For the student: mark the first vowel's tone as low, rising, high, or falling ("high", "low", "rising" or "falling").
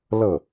falling